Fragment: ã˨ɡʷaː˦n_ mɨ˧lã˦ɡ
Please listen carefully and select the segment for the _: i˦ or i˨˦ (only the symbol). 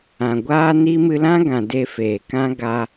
i˦